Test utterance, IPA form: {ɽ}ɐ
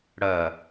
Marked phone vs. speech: correct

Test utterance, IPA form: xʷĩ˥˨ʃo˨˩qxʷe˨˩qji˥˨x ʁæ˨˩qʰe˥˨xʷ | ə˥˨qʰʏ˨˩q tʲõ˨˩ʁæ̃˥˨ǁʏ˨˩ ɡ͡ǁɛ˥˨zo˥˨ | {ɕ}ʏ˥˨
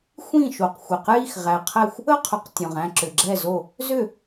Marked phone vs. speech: incorrect: z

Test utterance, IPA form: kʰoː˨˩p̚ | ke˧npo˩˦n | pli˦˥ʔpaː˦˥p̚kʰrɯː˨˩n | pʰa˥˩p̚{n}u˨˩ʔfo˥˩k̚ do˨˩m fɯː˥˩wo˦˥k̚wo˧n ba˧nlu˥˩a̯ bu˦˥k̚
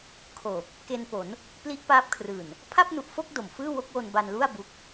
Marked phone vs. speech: correct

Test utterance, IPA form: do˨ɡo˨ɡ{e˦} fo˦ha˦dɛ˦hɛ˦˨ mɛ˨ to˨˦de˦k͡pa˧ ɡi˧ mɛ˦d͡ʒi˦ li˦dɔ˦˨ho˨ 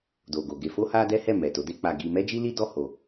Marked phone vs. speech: incorrect: e˧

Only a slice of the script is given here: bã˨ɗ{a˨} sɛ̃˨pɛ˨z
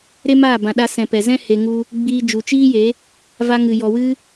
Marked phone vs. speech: incorrect: a˧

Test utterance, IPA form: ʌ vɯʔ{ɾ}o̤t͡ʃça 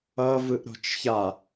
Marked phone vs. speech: correct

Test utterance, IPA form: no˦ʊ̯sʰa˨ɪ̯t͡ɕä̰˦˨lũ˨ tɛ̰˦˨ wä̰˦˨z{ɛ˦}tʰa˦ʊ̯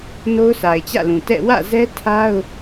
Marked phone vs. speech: correct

